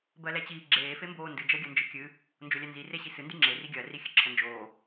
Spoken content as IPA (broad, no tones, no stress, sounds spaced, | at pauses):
b ɜ l ɛ t͡ɕ iː ɡ͡ǁ eː f e m b oː n d ɨ d͡ʒ ɜ ɡʲ ɜ n d͡ʒ ɨ kʲ ɨ | n d͡ʒ o lʲ ɛ n z i r e ɕ i s ɨ n d ɨ ŋ͡ǁ e r i ɡʲ ɜ r i xʲ ɨ ǁʰ ə n d͡ʒ oː